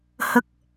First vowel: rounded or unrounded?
unrounded